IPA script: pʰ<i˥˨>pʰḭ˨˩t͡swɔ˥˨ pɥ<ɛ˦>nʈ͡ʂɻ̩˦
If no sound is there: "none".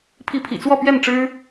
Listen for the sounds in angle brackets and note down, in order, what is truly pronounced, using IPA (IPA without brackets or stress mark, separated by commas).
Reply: i˨˦, ɛ˥˨